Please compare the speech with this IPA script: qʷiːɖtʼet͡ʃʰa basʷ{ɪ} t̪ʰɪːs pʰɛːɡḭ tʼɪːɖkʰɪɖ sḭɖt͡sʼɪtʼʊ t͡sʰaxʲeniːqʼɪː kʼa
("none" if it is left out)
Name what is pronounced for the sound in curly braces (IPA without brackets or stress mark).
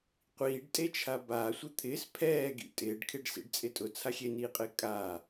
ɪ